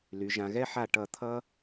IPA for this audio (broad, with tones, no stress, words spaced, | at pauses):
ly˩˧ʒã˩˧ɣɛ˥ ħa˧˩ʈʌ˧˩ t̪ʰʌ˥